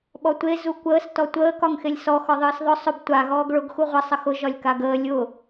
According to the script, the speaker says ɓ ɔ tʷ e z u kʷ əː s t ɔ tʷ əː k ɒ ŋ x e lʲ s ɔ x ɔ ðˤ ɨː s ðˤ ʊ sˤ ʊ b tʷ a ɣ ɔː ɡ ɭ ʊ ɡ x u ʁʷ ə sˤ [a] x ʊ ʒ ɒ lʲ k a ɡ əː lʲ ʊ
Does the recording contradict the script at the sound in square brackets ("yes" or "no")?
yes